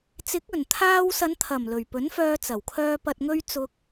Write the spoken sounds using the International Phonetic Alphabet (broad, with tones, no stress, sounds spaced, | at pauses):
t͡s ɪ˨˥ k̚ ɵ˨˩ n t̪ʰ aː˧ w s ɐ˨˧ n t̪ʰ ɐ˨˩ m l ɵ˨˩ ɥ p ɵ˨˥ n f œː˧ t͡s ɐ˨˩ w kʰ œː˧ p ɐ˨ t̚ ŋ ɵ˧ ɥ t͡s ʊ˧ k̚